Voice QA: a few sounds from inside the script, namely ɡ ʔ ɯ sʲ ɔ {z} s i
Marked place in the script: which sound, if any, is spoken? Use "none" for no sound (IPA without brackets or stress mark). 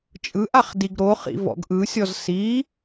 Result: z